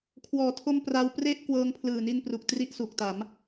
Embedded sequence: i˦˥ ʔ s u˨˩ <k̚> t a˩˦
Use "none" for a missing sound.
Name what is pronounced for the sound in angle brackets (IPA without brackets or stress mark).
k̚